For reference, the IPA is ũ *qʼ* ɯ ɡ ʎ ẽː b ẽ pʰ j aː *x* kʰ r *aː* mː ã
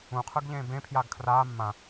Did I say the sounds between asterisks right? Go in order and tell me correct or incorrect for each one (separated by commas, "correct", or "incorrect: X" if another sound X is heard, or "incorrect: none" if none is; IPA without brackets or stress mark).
incorrect: qʰ, incorrect: ɡ, correct